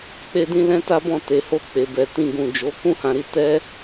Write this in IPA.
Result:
k͡p e˦ d ĩ˦ l ɛ̃˦ t a˦ b ɔ̃˦˨ t e˨ h o˧ k͡p e˨ b ɛ˨ t ĩ˧ ɡ ũ˨ d͡ʒ o˨˦ k ũ˦ h ã˧ ɾ i˧ t ɛ˦

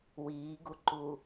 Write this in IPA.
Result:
w iː ɡ u ǃ u

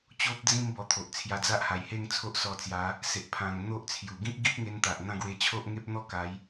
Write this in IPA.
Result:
t͡ɕ o˦ p̚ d͡z ĩ˥˧ m b ɔ˧ t̪ʰ o˨ ʔ t͡sʰ j a˧ d͡z a˦ ʔ h a˨˩ j h e˥˧ ŋ t͡sʰ o˦ ʔ s ɔ˧ t͡s j a˨˦ | s e˨ ʔ pʰ ã˨˩ ŋ n̪ o˦ ʔ t͡sʰ j u˨˩ ɡ ĩ˦ p̚ ɡ i˦ p̚ ŋ e˧ n t̪ a˨ ʔ n̪ ã˥˧ ɡ w e˧ t͡ɕʰ o˦ ʔ ŋ e˦ p̚ n̪ ɔ˦ k a˨˦ j

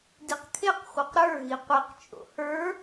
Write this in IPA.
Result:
d i q kʰ e q χʷ e q ɾ ə˞ ɣ i qʷ i q t͡ʃʼ o̰ h ə˞

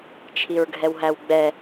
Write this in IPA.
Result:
t͡ʃʰ i ɹ ɡʱ ɛ w ɦ æ w ɡ͡b ɛ

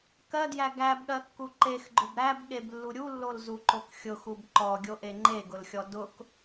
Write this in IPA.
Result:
k ɜ d j æ ɡ æ b ɠ ɜ kː u ǃ e x ɡ͡ǃ ʊ b ɾ æ b ɠ e b lː u ɾʲ u lː o l z u ǃ o k xʲ ʊ x u b ǃ ɔ ɡʲ o ʔ e ŋ͡ǃ e ɡ ʊ l xʲ ɔ d ʊ k

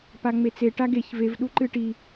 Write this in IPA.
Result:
p a ŋ͡m e t͡s e ʈ a ɡ e ç v e v ɗ u ǃ ɨ ʈ i

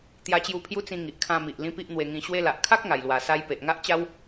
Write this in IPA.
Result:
t̪ j a˧ t͡ɕ j u˧ pʰ j u˦ t͡s ĩ˧ ŋ i˨ ʔ kʰ ã˧ m i˨ ʔ l ĩ˦ p i˦ ʔ n̪ w e˧ ŋ ĩ˧ ɕ w e˧ l a˨ ʔ kʰ a˦ k̚ ŋ a˨˩ j l w a˨˩ s a˧ j p e˨ ʔ ŋ a˦ ʔ t͡ɕ a˦ w

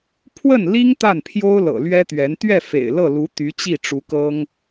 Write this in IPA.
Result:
pʰ w ə˥˩ n l i˥ ŋ t̪ a˥˩ n pʰ j o˥ ʊ̯ l ɤ̰˨˩ l ɥ ɛ˥ t̪ ɥ ɛ˧˥ n t̪ ɥ ɛ˥˩ f ḛ˨˩ ɪ̯ l ɤ˥˩ l u˧˥ t̪ y˧˥ t͡ɕ i˥˩ ʈ͡ʂ u˧˥ k ɤ˥ ŋ

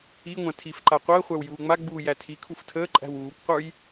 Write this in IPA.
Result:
i ŋʷ ã tʰ i f ǃ a qʷ əː χʷ æ w j uː ŋ͡m a ɡ͡b uː j æ tʰ i kʰ u f tʰ əː ǃʼ æ̤ w uː kʷ qʷ ə˞ j

